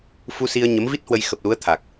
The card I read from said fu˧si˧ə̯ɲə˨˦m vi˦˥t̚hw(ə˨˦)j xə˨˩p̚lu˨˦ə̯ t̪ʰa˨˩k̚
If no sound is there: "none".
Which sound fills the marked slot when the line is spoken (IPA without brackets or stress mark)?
ə˧